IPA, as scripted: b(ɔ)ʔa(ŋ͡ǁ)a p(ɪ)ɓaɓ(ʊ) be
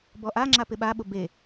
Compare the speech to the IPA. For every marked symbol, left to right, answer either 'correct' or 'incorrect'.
correct, correct, correct, correct

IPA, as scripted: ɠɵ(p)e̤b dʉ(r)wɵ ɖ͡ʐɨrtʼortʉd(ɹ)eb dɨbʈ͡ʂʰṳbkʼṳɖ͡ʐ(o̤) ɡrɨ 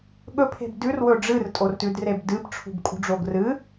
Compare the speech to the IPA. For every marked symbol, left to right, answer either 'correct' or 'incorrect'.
incorrect: pʰ, correct, incorrect: r, incorrect: o

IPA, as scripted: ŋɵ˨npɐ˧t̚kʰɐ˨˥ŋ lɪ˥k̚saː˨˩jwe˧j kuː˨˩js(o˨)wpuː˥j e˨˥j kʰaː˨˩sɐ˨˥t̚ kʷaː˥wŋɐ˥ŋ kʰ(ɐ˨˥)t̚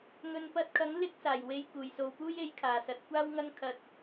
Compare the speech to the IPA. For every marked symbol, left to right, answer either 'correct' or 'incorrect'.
correct, incorrect: ɐ˧

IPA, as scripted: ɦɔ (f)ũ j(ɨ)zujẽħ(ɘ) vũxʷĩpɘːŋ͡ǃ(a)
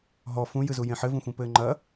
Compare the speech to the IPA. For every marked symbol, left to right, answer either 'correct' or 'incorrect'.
correct, correct, correct, incorrect: ɐ

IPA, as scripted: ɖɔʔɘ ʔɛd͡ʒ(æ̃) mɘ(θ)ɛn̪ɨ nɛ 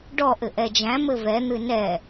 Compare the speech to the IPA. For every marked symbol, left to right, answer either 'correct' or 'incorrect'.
correct, incorrect: v

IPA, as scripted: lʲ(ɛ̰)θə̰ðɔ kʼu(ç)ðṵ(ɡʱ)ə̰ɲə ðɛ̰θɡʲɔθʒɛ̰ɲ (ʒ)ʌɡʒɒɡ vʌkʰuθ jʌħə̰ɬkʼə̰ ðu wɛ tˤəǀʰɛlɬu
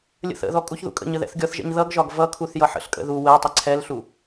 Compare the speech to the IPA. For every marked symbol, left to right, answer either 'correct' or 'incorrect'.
incorrect: ə̰, correct, incorrect: kʼ, incorrect: ð

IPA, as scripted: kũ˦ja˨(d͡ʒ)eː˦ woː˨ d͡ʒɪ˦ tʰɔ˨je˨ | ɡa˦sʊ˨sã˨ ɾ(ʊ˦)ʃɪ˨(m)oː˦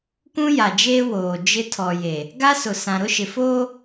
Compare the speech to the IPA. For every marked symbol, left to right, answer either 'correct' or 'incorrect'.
correct, correct, incorrect: f

